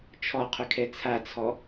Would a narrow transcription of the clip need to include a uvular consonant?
yes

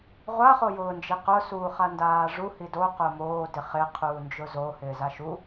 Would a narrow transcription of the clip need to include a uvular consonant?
yes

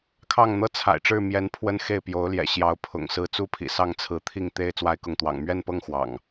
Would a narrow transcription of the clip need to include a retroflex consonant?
yes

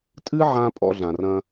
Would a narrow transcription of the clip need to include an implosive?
no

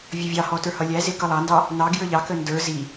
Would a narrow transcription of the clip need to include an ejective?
no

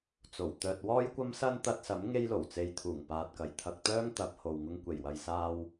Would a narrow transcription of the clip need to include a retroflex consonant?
no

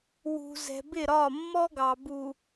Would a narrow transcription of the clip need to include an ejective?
no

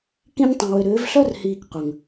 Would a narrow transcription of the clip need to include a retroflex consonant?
no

